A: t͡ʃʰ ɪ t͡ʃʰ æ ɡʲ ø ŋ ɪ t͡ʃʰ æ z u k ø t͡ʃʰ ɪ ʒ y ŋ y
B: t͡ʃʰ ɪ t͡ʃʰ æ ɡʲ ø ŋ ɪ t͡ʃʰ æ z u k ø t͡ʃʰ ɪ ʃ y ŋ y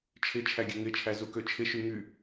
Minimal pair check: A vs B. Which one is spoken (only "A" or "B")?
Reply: B